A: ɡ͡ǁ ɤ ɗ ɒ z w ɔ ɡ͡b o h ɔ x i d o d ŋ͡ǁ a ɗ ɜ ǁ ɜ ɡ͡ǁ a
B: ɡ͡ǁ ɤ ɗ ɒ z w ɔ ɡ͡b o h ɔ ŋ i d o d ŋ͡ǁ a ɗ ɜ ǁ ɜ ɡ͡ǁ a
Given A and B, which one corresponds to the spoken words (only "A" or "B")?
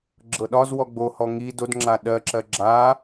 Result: B